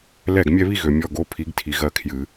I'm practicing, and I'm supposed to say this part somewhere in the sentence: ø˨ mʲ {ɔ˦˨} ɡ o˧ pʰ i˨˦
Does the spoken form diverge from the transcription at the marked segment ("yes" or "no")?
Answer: no